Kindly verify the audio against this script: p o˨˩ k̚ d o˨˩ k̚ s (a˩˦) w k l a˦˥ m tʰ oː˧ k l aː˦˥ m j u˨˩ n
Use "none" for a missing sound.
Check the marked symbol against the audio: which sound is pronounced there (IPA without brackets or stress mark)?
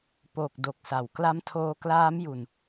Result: a˩˦